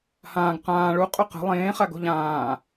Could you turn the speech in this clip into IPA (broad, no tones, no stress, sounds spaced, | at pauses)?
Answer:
h ãː ɡ q ãː ɭ u qʼ ɵ q ə̤ lˠ ẽː χ a ɡ o̤ ʎ ãː